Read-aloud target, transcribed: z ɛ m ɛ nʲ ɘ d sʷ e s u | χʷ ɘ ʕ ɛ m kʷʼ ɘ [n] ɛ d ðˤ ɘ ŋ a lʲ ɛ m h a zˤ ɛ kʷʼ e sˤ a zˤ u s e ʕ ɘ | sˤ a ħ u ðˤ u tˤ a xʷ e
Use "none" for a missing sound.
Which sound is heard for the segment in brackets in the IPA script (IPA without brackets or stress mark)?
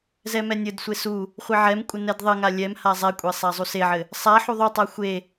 n